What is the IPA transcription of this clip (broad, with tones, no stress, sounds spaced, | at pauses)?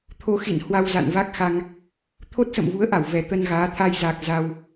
t̪ʰ o˧ x ḭ˧˨ n h w a˧ w z a̰˧˨ n v a˦˥ k̚ x a˧ ŋ | t̪ʰ o˦˥ t̚ s ə̰˧˨ m v u˨˦ ə̯ ʔ a˧˩ w v ɛ˨˩ t̪ ə˧ n ɣ aː˨˦ t̪ʰ a˧ j z aː˨˩ k̚ z a˧ w